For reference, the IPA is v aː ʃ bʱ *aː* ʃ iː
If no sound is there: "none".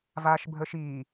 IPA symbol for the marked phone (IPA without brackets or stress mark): əː